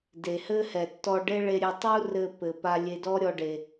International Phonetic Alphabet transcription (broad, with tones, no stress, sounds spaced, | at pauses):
d e˩ h ɘ˥ h ɛ˩ tː ɔ˧ ɖ e˥ ɭ e˧ ɾʲ e˧ tˤ u˥ r ɘ˧ p ɘ˩ p a˧ lʲ e˧ d ɔ˥ ɾʲ ɔ˧ ɖ e˩